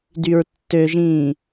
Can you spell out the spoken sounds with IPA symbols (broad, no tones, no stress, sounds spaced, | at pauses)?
d y ɹ tː ø ʒ ĩː